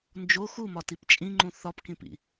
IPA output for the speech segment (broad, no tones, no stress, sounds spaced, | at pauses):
n d͡ʒ o x u m ɒ t i p t͡ʃʼ ĩ ŋ͡ǃ ũ θ ɒ p k ĩ p ḭ